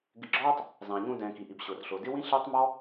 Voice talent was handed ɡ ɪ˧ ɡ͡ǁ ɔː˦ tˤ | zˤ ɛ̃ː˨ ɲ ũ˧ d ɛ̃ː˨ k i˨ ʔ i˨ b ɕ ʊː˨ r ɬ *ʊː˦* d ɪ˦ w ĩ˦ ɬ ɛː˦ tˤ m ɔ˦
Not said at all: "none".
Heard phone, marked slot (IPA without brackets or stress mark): ʊː˨